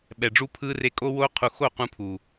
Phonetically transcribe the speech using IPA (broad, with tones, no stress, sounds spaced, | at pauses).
ɓ ɛ˨ ɖ͡ʐ u˧ pʰ ɯː˧ r e˧ kʼ o˧ w oː˧ qʰ u˨ x o˦˨ q ũ˧ pʰ uː˨